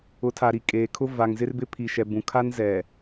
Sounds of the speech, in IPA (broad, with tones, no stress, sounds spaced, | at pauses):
ʊ˨˦ tʰ a˨ ɾ i˨ kʼ eː˨ kʰ ʊ˦ v a˨ ŋ z ɪ˦ r b ɪ˦ pʰ i˨ ʃ ɛ˨ b ũ˨ kʰ a˦ n z ɛ˨